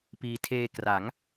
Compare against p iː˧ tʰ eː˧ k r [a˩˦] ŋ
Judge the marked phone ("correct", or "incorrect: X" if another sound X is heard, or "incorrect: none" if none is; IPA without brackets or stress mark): correct